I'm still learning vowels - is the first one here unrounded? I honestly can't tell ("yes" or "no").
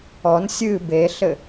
no